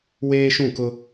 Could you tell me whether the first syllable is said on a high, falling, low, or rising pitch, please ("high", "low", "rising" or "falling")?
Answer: high